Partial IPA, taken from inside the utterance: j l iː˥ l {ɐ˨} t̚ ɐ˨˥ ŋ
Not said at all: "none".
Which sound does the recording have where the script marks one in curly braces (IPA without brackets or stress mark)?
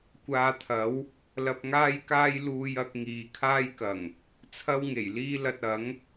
ɐ˧